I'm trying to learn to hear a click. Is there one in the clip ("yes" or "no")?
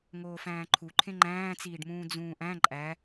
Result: yes